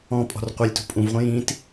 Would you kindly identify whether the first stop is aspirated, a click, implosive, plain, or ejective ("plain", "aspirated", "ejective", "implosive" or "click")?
ejective